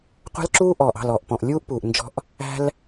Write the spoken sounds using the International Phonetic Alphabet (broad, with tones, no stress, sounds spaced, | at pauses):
qʷ æ̤˦ l ǁ uː˦ ʔ ɔː˨ ʔ ɑ̤˦˨ l ɔː˨ ʔ p ɔ̃˨ ʔ lʲ uː˦ ʔ p uː˨ ʔ n d͡ʒ ɔ̤˦ ʔ | æ̤˦ l